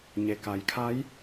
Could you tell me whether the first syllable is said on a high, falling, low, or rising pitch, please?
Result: low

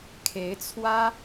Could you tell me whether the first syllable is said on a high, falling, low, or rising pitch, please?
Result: rising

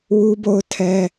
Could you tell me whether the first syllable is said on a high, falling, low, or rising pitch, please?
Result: high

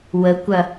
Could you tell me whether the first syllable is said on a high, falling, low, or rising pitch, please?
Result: rising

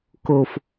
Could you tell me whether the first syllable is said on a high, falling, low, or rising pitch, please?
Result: low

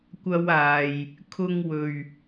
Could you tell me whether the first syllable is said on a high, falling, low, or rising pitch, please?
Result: high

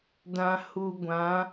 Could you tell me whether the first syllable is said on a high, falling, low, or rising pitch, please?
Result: low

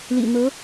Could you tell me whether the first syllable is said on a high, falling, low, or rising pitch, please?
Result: low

